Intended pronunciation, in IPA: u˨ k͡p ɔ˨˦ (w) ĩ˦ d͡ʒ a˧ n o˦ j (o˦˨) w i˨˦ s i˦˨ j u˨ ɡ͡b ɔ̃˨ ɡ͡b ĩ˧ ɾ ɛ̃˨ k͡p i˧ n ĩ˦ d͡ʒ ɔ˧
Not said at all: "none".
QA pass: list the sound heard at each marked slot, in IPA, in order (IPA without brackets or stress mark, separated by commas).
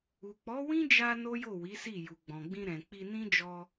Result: w, o˦˨